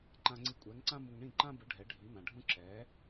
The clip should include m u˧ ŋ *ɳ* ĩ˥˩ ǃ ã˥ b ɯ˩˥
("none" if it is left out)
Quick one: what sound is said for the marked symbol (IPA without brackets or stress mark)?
ɳ